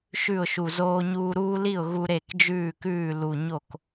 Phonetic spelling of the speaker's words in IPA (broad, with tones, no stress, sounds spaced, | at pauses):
ʃ ʉ˥˩ ʊ̯ ʃ u˨˩ z oː˦ ɲ uː˦ ɾ uː˦ l i˥˩ ʊ̯ ɣ u˦ ɾ e˥˩ k d͡ʒ ʉː˥˩ k ʉː˥˩ l u˨˩ ɲ o˥˩ k